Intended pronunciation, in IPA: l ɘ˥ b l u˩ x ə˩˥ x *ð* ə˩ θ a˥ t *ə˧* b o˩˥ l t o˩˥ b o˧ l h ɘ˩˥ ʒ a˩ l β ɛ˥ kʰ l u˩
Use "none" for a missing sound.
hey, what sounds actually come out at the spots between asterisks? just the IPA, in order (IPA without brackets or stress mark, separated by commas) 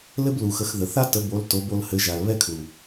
ð, ə˩˥